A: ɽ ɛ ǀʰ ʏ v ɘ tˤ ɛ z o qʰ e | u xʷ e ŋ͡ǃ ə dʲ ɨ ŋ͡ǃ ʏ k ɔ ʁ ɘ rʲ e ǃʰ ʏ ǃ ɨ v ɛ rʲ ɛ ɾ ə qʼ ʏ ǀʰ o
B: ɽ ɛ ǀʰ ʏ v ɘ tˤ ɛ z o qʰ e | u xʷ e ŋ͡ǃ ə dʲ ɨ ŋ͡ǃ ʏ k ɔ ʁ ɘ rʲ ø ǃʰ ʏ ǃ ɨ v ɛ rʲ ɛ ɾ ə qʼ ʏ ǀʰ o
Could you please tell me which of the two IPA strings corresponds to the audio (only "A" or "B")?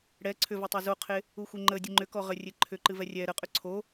A